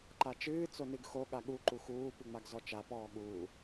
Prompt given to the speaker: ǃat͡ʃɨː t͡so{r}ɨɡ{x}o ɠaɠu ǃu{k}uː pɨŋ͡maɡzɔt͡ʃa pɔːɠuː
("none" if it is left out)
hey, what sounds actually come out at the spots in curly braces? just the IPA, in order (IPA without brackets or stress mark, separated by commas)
n, x, x